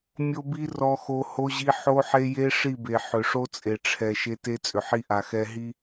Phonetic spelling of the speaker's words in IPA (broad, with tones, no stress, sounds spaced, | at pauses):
mʲ o˦ b i˦ r ɔ˦ x o˦ h o˦ ʑ i˦ ħ o˦ ħ e˦ j e˦ ʂ i˦˨ b e˨ ħ ʏ˨ ʂ o˦ t͡sʼ e˨ ʈ͡ʂʰ ɛ˨ ʃ e˦ t e˦ t͡sʼ ʏ˨ ħ i˦ ʔ a˨ x ɛ˦ ɦ i˦